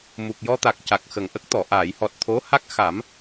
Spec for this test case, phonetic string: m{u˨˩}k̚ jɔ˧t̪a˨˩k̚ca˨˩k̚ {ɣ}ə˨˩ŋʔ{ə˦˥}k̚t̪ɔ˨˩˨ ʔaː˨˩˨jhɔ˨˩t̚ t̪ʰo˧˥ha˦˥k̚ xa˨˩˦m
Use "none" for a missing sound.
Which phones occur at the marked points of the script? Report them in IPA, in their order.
u˨˩, x, ə˦˥

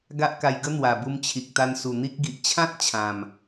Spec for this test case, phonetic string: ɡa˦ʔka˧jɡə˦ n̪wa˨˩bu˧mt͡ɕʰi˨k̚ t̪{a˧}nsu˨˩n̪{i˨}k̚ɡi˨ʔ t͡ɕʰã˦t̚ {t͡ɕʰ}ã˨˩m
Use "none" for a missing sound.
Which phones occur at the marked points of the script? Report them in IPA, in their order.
a˧, i˦, t͡ɕʰ

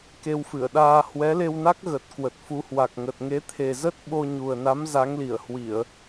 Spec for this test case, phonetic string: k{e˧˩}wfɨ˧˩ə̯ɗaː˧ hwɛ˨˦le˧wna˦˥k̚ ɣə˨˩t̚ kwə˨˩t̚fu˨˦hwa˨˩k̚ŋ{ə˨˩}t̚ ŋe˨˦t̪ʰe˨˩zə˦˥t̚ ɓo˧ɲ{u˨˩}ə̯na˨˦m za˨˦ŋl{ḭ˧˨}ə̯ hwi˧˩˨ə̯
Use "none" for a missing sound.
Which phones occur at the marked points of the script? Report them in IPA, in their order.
e˧, ə˨˩, u˨˩, i˧˩

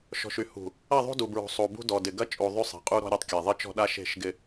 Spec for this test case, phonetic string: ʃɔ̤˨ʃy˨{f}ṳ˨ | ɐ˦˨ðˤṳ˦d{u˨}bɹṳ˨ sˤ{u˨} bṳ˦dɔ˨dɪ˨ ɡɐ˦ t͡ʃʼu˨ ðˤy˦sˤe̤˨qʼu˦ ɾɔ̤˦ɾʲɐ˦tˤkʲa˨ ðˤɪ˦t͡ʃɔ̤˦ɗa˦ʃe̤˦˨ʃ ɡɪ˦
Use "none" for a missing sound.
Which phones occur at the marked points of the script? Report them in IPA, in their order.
h, u˨, u˨

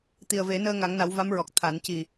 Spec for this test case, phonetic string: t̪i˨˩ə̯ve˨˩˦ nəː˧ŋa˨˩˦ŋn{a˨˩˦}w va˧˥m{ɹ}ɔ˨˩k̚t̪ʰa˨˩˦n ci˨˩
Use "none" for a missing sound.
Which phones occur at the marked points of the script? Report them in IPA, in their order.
a˨˩˦, ɹ

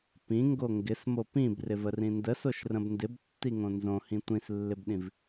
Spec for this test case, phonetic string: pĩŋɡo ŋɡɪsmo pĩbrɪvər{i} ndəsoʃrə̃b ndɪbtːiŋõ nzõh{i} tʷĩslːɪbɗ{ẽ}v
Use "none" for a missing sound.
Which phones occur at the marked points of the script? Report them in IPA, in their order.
ĩ, ĩ, ĩ

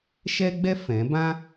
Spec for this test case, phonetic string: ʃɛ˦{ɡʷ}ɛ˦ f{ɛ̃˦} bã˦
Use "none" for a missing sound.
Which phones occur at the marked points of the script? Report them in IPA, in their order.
ɡ͡b, ɛ̃˨˦

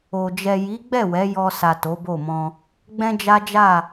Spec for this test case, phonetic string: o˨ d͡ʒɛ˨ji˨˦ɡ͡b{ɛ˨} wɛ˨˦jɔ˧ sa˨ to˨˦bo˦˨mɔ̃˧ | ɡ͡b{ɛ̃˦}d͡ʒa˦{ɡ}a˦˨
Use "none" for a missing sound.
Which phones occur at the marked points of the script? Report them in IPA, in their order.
ɛ˦˨, ɛ̃˦, d͡ʒ

